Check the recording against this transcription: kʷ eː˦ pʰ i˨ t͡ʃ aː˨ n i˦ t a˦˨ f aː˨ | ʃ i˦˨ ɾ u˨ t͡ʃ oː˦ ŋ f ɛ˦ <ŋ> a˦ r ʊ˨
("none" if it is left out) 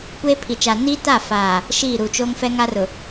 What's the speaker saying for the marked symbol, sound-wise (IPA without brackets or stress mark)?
ŋ